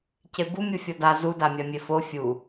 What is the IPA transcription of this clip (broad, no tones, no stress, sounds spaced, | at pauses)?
c e b u mʲ u fʲ ɔ d a z u d a mʲ a mʲ e f o fʲ u